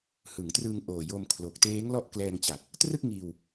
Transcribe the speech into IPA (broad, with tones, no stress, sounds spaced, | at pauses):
h ɯ˩˦ ŋ t r ɯː˧ ŋ ʔ oː˨˩ j o˧ m kʰ l o˨˩ k̚ t eː˦˥ ŋ l ɔ˦˥ ʔ k l ɛː˧ ŋ t͡ɕ a˨˩ k̚ | t r ɯ˥˩ k̚ ŋ iː˧ w